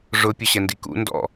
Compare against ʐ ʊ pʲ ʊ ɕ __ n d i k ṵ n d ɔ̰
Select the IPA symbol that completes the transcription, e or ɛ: ɛ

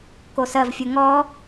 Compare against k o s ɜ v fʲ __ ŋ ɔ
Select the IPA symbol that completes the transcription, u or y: u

